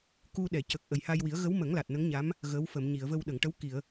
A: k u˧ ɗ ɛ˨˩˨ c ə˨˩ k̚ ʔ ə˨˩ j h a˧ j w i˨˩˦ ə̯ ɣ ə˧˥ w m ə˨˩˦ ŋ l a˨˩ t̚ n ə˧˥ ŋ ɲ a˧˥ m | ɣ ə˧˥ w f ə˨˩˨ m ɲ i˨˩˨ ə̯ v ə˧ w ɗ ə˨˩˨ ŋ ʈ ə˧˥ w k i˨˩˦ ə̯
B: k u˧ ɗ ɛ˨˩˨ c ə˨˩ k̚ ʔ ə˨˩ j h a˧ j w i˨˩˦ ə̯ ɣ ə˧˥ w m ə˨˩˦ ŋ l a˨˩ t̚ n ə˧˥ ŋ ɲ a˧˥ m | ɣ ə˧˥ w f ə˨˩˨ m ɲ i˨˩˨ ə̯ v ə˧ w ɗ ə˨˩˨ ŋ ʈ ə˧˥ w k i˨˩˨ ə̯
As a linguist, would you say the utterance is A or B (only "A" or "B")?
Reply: B